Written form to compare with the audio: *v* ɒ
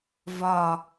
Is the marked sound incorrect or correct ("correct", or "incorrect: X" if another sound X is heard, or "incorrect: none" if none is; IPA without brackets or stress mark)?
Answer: correct